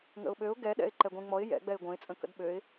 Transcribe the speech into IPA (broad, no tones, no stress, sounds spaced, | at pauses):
ŋ ə̰ ʊ̯ ɓ ø ʊ̯ ɡ ɛ ɗ ɛ̰ ɪ̯ ǃ ɛ ɡʷ ẽ ŋ͡m ɔ ɪ̯ j ɛ̰ ɡ͡b ɛ ɪ̯ ɡʷ œ̃ ɪ̯ t͡sʼ ə̃ k ə̰ d ɓ ø ɪ̯